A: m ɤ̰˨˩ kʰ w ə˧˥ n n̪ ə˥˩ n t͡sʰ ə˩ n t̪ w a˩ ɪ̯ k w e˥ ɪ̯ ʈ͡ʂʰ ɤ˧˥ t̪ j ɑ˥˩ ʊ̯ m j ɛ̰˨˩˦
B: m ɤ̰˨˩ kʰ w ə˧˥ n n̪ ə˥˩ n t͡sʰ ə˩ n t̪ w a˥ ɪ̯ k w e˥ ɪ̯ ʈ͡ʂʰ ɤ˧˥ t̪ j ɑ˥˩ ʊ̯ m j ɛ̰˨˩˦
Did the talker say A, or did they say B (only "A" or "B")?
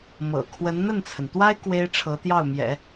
B